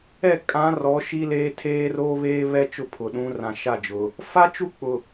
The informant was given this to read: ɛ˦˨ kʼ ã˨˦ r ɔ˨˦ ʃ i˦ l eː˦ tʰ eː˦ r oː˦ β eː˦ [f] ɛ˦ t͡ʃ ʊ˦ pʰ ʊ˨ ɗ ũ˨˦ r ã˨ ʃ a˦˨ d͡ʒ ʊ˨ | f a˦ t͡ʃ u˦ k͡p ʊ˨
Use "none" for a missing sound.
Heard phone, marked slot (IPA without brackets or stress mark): β